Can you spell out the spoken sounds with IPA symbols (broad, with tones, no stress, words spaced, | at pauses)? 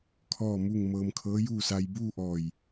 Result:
kʰɔː˥˨mu˥˨ŋ mɤː˧mkʰɤː˧˥juː˥˨sa˧j buː˥˨ʔɔː˧˩j